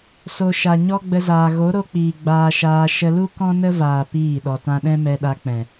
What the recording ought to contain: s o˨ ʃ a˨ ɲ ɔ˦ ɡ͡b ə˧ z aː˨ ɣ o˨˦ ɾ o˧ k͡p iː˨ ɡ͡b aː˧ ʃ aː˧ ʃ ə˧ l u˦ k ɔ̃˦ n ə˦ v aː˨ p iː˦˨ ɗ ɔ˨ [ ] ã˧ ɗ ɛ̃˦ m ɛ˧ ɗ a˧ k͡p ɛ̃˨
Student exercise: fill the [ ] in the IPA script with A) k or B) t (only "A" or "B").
B